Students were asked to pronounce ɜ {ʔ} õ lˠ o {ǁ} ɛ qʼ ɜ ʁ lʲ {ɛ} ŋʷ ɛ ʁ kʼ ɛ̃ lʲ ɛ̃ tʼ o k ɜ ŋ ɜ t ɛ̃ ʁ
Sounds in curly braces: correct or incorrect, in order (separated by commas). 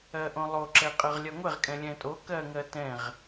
correct, correct, incorrect